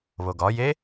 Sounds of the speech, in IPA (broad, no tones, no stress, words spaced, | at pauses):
βoɡɒje